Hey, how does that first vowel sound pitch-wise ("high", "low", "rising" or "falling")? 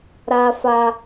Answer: low